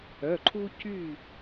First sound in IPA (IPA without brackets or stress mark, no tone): œ